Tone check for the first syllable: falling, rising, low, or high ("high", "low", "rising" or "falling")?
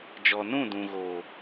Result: low